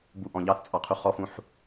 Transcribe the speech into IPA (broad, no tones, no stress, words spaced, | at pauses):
buʔɔ̃ ʎɑθt͡sʼɑqʰu χɔfũħ